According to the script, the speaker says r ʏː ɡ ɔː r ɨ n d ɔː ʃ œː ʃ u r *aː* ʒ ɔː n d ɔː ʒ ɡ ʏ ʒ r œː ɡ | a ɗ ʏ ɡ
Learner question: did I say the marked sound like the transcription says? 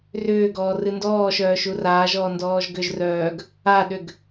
yes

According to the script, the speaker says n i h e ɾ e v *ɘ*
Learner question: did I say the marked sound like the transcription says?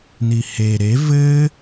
yes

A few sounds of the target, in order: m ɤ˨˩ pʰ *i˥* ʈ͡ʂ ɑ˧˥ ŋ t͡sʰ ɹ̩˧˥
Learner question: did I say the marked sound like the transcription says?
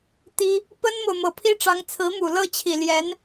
yes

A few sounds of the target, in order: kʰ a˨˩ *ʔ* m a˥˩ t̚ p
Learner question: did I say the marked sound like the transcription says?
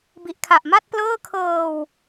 yes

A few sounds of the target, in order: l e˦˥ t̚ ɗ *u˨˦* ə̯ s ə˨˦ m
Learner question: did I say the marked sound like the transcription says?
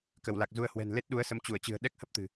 yes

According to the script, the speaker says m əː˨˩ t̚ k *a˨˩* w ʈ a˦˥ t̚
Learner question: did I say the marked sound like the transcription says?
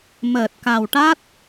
yes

